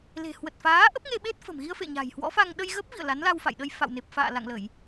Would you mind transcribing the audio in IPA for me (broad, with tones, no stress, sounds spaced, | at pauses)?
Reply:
l e̤˨˩ h w ə˨˩ t̚ f aː˨˦ ʔ ə˦˥ p̚ ŋ e˧ ɓ e˦˥ t̚ f ə̤˨˩ m ɣ i˧ ə̯ f ḛ˧˨ ɲ a̤˨˩ j h w ɔ̰˧˥ f a˧ ŋ ɗ ə˧ j ɣ ə˦˥ p̚ v ḭ˧˨ ə̯ l a˨˦ n l a˧ w f a̰˧˨ j ɗ ə˧ j f a̰˧˨ w n e˨˩ p̚ f a̰ː˧˨ l a̰˧˨ ŋ l ə˧˩˨ j